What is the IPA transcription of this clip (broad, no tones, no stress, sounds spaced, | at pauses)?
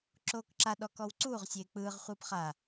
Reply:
ǁ oː k ǁ a ɗ ɔ k ɔ w ǀ uː ʁ sʲ eː k͡p ɯː ʁ χʷ ɯː p χ a